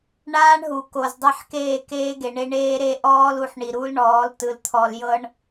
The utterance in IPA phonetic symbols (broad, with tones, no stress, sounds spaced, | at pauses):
ɳ aː˦ ɳ ɦ u˨ k o˨ z dˤ e˦˨ ħ k eː˦˨ k eː˦ ɡ e˨ ɳ e˦ ɳ eː˦ ɾ e˦ ʔ ɔː˦ l u˨ ħ ɳ i˨ ɾ u˦ l ɳ ɔː˨˦ l t ɯ˨ l t̪ʰ ɔ˨ l j ɤ˦ ɳ